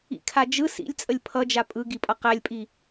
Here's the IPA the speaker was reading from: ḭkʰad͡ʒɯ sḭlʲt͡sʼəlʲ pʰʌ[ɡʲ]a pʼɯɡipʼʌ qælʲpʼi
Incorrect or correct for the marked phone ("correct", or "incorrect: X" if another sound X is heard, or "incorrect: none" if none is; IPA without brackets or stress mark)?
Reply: incorrect: d͡ʒ